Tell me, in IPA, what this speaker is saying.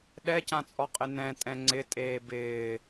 ɗ ɛ c ã t͡sʼ ɔ qʼ ɪ n ɛ̃ tʼ ɛ̃ ŋ͡ǀ ɪ tʼ eː b ɪː

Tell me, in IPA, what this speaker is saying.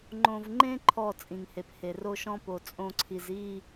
ŋ͡ǃ õ˨ v ŋ͡ǃ ẽ˦ ǃʰ ɔ˦˨ t͡sʼ ĩ˨ ŋ h e˨ p h e˨ r o˦ ʃ ɔ̃˦ p o˨ t͡sʼ õ˦ ǀʰ i˨ z i˦˨

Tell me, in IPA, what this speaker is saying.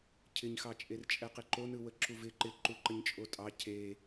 cʰ ɪ ɲ x ɑ t͡ʃʼ e r t͡ʃʼ ɛ q ɪ ǃ o n ɯ w ə ǁ u v ɪ ǃ ɪ ǃ u ǃ ə ɲ t͡ʃʼ o tʼ ɑ cʰ e

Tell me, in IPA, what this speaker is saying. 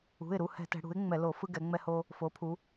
ṳ˩˧˩ ɪ̯ ɾ u˩˧˩ h ɛ̤˧˩˧ t ɛ̤˩˧ ɽ ṳ˩˥ ɪ̯ ŋ͡m ɛ˧˩˧ l o˧˩˧ f ɯ˦ ɡ ɛ˩˧ ŋ͡m ɛ˦ h o˦ | f o˩˥ pʰ u˩˧

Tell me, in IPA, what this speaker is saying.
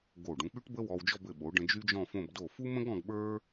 ɡ o˧˩ ɖ ũ˧ k͡p y˥ ʈ b ə˥ w ɔ˧ w d͡ʒ ɔ˥˧ b ɘ˧˩ ɓ o˩˧ ɖ ə̃˧ d͡ʒ y˥ d͡ʒ ɔ̃˥˧ f õ˥˧ b d o˧˩ f u˥ m ə̃˥ ɡ ɔ̃˧ ɡ ɓ ə˞˥

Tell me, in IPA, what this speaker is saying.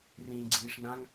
r ĩː ɡ͡ǀ iː ʂ n ã ŋ

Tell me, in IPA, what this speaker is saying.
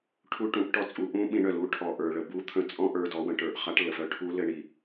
ʈʰ u˧ ʈ ũ˩˧ ʔ ʈ ɔ˧ t͡sʼ u˩˧ ʔ ũ˧˥ ɓ ĩ˩˧ ɳ œ˩ l u˧˥ ʈʰ ɔ˩ ʔ ə˞˩ ɭ ə˩ b u˧˥ t̪ʰ ə̃˧˥ t͡sʼ ɔ̃˥ ʔ ə˞˧ d ɔ˩˧ w ə̃˩˧ ʈ ə˞˩ ʔ χ a˧˥ ʈ l ə˩ f œ˧ ʈʰ u˧˥ l ɘ˧ ɳ i˩

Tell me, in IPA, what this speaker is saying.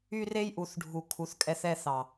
y˧ r e˧ j ʔ u˨ θ ɖʱ u˨ kʰ u˨ θ kʼ ɛ˧ θ ɛ˧ θ ɑ˨

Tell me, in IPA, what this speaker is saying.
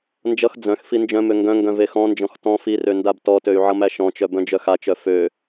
n d͡ʒ ʌ x d͡z œ̃ x f i n d͡ʒ œ̃ m ø ŋ ɡ œ̃ ŋ ɡ œ̃ v e x ɔ̃ n d͡ʒ ɔ̃ x t ɔ̃ f i r ø n d a b t ɔ t ø y̯ ʕ ʌ m æ ʃ ɔ̃ t͡ʃ œ b œ̃ d͡ʒ œ x a t͡ʃ œ f ø

